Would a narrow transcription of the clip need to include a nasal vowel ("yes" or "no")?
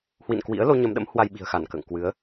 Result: no